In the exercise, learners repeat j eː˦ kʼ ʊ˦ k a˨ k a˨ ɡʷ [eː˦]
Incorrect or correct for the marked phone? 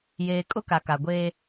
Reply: correct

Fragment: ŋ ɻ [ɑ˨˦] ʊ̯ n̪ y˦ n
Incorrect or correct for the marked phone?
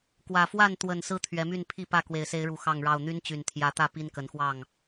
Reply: incorrect: ɑ˥˨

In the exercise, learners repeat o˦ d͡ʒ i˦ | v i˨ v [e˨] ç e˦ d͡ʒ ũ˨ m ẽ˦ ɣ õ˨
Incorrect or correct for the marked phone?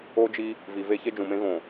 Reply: incorrect: e˦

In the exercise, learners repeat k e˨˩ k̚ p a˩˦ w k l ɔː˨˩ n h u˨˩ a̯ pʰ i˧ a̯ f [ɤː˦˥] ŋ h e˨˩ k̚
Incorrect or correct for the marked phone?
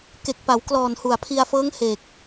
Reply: correct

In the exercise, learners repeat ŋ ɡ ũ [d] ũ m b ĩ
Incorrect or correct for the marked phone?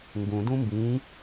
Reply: correct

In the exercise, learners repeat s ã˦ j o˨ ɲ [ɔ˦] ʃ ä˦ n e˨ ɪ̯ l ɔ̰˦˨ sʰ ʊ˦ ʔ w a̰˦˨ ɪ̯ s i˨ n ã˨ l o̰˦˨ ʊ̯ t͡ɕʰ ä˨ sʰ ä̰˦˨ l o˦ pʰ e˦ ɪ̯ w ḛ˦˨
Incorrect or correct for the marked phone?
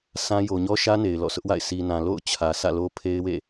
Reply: correct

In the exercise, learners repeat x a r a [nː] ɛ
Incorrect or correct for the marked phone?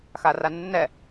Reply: correct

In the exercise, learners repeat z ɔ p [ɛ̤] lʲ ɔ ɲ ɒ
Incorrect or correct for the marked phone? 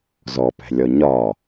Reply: correct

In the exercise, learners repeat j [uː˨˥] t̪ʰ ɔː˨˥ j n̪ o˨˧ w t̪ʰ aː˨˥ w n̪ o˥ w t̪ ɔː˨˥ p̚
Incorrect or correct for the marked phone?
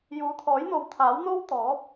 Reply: correct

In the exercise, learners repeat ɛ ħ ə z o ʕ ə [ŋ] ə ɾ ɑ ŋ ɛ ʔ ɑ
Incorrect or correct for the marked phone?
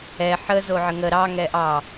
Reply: correct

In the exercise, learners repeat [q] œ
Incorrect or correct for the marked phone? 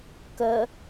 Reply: incorrect: k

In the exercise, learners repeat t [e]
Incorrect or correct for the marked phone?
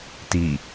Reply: incorrect: i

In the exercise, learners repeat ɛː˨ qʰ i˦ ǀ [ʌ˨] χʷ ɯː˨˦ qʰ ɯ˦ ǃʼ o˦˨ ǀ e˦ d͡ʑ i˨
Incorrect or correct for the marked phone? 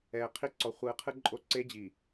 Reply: incorrect: ɔ˨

